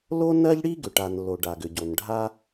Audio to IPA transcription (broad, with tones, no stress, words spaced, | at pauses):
lo˥nɜ˥ʎ ɽi˥ ɡʏ˩ʈa˩n lo˩ ɖa˩ɡʏ˩ɟo˩nɖʱa˥